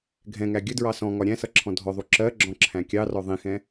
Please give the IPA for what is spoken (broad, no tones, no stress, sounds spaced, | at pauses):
ɡʱ ɛ̃ ŋ æ ɡʲ ə d ɹ ɑ s ɔ̃ ŋ ɒ ɾʲ æ̃ s ʌ ǁʰ ɔ̃ dʱ ɔ ðˤ u ǁ ɜ ɡ͡ǁ ɔ̃ ǁʰ æ̃ kʲ ɑ r ɔ ðˤ ĩ x ɛ̃